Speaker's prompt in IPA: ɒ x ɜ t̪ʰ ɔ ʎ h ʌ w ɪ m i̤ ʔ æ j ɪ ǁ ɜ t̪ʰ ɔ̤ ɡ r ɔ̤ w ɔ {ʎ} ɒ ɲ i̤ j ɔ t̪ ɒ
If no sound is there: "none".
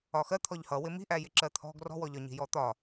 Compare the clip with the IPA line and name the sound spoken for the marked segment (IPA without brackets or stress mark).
ʎ